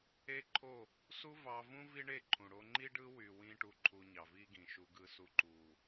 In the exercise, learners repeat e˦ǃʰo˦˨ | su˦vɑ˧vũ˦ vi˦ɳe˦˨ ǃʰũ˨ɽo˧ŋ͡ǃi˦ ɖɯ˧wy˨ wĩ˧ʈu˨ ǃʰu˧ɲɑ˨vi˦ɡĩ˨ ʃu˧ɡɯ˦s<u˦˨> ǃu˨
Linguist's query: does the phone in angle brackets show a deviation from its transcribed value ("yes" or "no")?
no